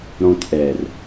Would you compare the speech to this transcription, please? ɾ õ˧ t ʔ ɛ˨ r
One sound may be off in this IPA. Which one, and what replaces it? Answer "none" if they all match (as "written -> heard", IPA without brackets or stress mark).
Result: none